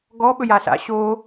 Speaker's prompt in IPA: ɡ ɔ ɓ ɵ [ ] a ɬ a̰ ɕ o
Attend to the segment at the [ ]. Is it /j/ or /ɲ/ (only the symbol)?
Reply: j